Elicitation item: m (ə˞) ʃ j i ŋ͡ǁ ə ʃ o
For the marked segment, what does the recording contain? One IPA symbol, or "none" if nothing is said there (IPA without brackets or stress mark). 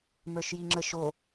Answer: ə˞